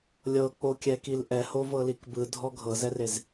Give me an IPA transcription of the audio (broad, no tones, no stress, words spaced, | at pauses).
lʲɤk͡pokʲɛkil ʔɛhovɤlik bɯdʱɔ ɡʱɤzɛrez